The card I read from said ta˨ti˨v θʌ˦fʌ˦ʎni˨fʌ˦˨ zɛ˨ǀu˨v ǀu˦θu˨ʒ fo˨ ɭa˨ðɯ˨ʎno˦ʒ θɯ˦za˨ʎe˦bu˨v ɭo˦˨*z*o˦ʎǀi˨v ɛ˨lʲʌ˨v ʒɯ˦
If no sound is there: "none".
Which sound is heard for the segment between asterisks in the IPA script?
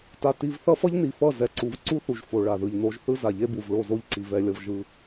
z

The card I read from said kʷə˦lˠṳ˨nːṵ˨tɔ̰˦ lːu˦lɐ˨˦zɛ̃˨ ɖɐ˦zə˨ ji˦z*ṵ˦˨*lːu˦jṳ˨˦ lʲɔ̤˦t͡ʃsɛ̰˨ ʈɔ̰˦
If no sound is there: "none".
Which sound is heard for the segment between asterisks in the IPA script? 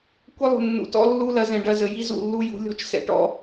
ṵ˦˨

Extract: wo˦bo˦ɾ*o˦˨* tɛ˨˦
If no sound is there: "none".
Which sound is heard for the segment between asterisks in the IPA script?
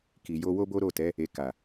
o˦˨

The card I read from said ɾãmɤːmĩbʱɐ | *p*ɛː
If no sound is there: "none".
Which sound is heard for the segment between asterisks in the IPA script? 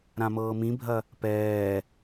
p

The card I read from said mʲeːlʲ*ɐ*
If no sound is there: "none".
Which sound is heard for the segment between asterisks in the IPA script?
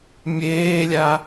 a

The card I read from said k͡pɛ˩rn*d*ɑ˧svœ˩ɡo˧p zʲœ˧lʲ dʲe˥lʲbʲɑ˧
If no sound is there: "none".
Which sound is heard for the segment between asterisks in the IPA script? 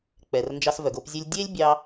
d͡ʒ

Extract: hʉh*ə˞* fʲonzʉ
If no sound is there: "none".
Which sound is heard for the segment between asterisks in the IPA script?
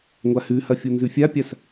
ɐ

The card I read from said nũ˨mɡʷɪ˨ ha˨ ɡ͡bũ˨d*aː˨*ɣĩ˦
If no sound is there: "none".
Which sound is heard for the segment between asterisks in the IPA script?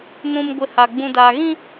aː˨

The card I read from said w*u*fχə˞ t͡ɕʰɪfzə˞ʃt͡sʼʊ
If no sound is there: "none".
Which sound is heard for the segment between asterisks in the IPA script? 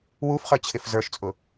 u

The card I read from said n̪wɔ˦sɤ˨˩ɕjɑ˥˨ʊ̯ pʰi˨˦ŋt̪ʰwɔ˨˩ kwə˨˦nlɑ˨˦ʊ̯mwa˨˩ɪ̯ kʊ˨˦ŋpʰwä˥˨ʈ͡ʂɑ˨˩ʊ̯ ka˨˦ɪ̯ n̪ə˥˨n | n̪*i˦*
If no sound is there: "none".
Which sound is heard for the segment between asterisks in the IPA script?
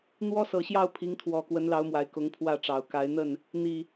i˨˩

